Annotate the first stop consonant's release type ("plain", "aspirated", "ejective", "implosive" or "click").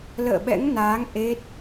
implosive